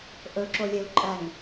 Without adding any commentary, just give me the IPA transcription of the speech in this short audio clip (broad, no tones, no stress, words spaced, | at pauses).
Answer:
ʔɵ ǁolʲeu̯ǃʼæŋ